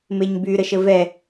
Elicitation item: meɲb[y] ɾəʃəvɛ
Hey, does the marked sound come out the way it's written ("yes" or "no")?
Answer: yes